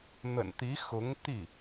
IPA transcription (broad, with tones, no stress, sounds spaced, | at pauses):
n̪ ə̰˨˩ n t̪ i˧˥ x ʊ˧˥ ŋ t̪ i˥˩